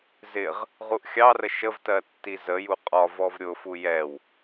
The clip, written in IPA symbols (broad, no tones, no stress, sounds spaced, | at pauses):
z ɪ ʁ | ʁ u ʔ xʲ ɑ r ə ʃ ə v t ɜ tː i z ə j u qʼ ɒ v ɔ v ɾʲ ʊ f u j ɛ w